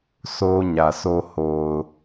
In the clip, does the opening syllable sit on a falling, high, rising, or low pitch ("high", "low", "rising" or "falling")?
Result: high